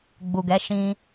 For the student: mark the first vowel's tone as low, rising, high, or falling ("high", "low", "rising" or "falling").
low